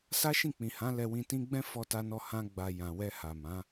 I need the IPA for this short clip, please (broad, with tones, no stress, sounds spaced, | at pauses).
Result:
s a˦ ʃ ĩ˦˨ k͡p ĩ˨ h ã˨˦ l ɛ˧ w ĩ˧ t ĩ˦ ɡ͡b ɛ̃˦ f ɔ˧ t a˧ n ɔ˧ h ã˦ ɡ͡b a˧ j ã˨ w ɛ˧ h a˨ m ã˨˦